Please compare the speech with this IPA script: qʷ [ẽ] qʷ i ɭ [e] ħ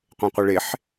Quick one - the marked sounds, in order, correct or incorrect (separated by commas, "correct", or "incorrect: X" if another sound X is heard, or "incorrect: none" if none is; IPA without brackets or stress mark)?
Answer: correct, correct